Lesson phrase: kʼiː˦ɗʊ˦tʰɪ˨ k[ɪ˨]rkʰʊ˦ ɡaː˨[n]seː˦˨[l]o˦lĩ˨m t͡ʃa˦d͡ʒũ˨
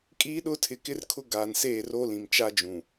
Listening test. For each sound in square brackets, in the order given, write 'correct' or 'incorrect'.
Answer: incorrect, correct, incorrect

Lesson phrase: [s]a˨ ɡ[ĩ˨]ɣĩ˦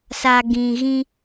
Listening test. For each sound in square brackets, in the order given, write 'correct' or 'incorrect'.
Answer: correct, correct

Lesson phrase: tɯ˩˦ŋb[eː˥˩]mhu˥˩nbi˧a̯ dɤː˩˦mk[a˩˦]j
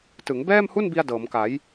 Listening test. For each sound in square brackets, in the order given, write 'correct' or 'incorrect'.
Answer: incorrect, correct

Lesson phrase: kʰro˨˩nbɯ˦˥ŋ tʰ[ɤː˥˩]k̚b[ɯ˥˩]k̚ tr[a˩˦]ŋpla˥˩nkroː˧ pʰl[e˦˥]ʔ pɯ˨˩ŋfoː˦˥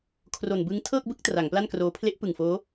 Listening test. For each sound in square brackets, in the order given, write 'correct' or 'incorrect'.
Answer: correct, correct, correct, correct

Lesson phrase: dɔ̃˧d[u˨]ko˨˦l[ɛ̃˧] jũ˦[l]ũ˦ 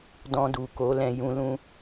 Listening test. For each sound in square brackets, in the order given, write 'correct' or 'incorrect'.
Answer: correct, correct, correct

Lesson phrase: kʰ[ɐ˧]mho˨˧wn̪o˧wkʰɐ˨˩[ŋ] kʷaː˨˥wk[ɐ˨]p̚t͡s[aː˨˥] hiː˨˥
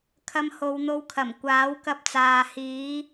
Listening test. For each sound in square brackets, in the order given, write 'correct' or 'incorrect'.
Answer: correct, incorrect, incorrect, incorrect

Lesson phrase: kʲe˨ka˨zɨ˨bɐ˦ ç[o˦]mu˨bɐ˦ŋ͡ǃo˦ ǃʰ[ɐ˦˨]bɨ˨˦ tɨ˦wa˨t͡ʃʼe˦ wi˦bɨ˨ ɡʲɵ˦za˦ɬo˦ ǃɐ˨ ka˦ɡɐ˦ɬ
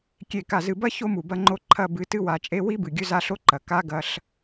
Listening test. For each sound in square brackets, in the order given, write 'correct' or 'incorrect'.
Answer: correct, correct

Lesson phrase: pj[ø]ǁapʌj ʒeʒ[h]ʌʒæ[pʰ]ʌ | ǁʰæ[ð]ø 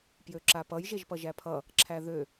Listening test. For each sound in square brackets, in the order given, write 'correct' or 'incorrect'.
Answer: correct, incorrect, correct, correct

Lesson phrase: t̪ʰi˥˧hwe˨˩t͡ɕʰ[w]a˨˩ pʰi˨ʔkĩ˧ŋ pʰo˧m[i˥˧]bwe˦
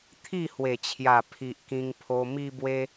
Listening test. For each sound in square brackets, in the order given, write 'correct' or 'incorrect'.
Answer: incorrect, incorrect

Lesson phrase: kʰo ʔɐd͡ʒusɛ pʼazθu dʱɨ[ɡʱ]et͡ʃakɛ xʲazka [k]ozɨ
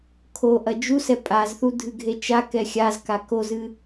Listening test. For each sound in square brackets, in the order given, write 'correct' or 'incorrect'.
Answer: correct, correct

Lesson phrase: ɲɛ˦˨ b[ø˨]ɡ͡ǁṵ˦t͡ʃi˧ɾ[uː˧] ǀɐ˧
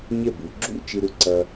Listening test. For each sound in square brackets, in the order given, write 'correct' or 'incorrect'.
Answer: incorrect, incorrect

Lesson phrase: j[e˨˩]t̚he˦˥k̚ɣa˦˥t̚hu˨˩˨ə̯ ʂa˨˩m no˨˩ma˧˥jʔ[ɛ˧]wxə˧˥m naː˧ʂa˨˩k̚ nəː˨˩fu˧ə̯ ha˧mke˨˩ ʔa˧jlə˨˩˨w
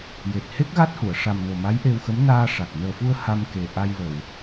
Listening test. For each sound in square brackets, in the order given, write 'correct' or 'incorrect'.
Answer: correct, incorrect

